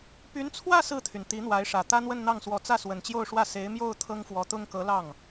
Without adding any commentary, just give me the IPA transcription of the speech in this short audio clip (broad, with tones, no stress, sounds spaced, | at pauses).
p y˧˥ n t͡sʰ w ä˥˧ s ɹ̩˥˩ t̪ʰ y˩ n t̪ i˧˥ n̪ w a˧˥ ɪ̯ ʂ ä˨˩ t̪ ä˥ n̪ w ə˥˧ n n̪ ɑ˥˩ ŋ s w ɔ˧˥ t͡s ä˥˩ s w ə˨˩ n t͡ɕ j o˥˧ ʊ̯ ʂ w ä˥˩ s e˧˥ ɪ̯ m j o˥˩ ʊ̯ t̪ʰ ɤ˥ ŋ f w ɔ˧˥ t̪ ʊ˥ ŋ k ɤ˧˥ l ɑ˥˩ ŋ